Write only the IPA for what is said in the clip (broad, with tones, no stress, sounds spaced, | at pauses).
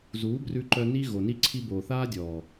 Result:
z uː˨˦ b r ʉ˧ ǃ œ˧ n i˦ ɣ o˨ n i˦ ǀʰ i˧ b oː˨ θ aː˦ dʲ ɔː˨